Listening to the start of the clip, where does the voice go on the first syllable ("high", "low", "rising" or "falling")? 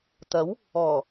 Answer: rising